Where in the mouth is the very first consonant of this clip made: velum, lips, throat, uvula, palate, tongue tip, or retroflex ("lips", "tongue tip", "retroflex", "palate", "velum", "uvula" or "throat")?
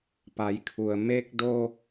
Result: lips